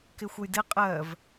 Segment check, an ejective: present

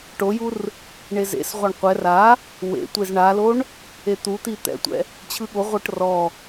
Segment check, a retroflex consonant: present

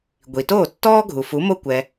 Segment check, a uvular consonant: absent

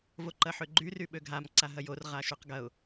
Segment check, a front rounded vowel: present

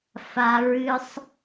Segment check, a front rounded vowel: absent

